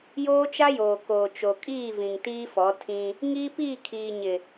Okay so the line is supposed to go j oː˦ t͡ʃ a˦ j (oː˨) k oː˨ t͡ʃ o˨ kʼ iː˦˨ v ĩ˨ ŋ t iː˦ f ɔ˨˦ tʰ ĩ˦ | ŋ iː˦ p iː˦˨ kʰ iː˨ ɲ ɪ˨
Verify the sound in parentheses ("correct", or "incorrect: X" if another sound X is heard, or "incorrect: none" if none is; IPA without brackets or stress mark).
correct